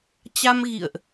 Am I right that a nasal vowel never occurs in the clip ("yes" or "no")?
yes